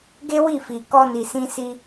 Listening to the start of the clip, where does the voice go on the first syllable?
high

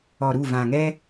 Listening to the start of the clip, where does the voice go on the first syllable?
low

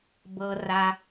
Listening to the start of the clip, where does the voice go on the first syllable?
low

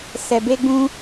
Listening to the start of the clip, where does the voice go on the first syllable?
low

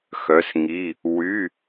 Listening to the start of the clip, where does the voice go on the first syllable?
rising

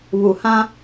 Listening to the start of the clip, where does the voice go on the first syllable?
low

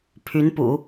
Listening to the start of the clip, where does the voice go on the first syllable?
rising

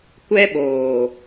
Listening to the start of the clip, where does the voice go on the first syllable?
high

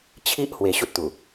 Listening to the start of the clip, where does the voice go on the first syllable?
high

